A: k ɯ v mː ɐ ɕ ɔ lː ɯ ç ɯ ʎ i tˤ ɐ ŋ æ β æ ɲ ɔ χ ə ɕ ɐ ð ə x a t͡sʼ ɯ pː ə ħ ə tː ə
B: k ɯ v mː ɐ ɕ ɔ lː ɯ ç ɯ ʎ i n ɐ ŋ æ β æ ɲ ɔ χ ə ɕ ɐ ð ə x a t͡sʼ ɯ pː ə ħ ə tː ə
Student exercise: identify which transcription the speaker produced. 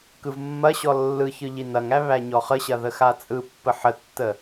B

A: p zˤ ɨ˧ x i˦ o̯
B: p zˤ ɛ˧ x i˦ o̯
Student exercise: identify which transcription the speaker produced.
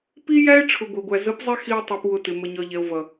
B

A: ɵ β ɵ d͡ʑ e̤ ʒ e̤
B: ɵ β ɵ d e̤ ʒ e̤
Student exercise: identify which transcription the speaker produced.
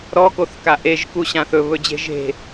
A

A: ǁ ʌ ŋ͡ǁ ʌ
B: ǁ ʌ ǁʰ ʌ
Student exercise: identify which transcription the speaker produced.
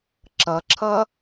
B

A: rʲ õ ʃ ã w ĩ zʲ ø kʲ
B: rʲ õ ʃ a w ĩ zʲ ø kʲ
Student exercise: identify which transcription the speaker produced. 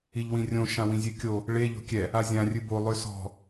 A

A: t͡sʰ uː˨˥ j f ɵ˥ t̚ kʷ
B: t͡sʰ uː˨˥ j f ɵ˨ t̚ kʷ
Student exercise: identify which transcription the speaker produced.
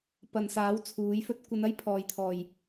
A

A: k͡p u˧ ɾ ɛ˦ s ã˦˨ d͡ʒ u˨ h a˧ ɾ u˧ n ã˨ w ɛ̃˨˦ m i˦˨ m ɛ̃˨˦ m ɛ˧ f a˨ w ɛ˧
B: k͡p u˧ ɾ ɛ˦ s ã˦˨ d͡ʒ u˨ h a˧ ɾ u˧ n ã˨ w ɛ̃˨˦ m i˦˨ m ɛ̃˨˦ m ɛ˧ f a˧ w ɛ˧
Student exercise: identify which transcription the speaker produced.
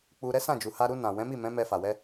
A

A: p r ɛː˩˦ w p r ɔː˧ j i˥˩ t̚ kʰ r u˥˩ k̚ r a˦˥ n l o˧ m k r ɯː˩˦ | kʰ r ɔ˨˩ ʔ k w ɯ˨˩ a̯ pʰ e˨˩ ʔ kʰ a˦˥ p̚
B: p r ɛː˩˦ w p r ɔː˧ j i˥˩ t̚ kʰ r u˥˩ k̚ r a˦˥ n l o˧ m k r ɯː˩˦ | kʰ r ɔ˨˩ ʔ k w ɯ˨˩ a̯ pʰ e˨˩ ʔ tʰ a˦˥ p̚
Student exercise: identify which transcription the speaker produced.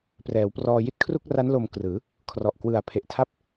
B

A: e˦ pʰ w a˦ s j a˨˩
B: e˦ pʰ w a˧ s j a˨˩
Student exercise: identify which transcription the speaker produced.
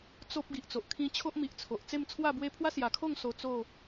A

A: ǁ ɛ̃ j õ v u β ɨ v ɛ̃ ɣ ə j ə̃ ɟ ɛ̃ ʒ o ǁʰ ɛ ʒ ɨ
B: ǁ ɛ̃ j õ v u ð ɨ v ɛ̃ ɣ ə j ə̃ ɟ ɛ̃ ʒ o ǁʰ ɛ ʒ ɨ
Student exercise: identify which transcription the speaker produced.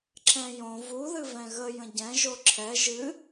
B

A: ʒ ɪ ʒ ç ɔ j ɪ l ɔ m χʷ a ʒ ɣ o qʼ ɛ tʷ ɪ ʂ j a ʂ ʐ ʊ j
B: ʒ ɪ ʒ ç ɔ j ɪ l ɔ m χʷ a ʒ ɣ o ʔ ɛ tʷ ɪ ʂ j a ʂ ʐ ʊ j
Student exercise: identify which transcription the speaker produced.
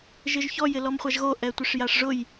B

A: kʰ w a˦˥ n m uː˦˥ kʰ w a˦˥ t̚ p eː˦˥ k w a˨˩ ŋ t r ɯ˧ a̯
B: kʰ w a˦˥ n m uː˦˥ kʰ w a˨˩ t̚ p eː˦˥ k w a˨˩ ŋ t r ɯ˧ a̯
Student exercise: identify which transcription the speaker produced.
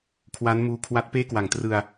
A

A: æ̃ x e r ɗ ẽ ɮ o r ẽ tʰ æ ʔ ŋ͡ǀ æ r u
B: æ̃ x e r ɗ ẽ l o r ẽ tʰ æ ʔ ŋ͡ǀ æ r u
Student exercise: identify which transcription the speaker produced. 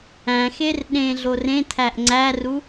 A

